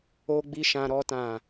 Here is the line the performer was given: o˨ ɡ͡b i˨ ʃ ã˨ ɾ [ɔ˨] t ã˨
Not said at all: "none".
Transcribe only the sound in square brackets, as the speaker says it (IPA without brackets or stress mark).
ɔ˨